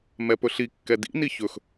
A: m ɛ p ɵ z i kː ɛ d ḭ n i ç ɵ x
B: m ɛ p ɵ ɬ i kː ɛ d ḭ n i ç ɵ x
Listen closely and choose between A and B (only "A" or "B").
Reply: B